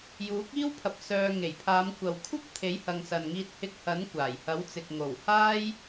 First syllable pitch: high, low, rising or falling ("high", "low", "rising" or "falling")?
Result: rising